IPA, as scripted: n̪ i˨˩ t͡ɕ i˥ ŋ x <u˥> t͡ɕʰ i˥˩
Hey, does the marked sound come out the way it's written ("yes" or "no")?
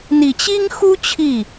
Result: yes